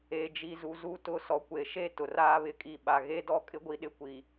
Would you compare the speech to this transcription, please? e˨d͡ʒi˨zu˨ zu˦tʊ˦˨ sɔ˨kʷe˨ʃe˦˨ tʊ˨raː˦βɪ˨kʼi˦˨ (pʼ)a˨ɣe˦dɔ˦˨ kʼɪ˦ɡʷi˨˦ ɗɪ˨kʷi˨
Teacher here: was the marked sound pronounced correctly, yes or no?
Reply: no